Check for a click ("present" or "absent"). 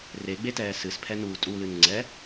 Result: present